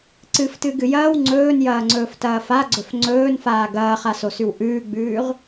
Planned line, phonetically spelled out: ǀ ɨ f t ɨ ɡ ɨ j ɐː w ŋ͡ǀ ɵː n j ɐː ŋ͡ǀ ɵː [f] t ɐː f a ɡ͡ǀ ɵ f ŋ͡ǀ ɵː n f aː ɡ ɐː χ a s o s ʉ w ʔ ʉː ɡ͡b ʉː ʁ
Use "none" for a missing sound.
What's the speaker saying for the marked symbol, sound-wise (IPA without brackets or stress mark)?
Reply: f